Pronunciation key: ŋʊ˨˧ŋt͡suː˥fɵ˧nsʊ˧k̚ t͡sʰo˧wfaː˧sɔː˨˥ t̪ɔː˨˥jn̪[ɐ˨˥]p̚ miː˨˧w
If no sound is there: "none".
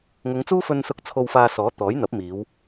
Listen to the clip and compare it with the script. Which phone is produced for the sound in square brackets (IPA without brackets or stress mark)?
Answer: ɐ˨˥